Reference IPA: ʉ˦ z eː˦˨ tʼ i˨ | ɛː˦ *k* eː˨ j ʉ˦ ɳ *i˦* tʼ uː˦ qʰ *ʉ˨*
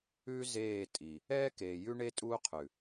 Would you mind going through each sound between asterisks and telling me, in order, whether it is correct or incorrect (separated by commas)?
correct, incorrect, correct